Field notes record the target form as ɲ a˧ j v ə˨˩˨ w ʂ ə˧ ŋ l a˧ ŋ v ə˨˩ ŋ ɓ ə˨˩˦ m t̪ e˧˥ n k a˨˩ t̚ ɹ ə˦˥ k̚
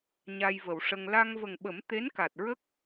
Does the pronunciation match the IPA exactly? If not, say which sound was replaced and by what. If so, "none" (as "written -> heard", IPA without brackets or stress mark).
none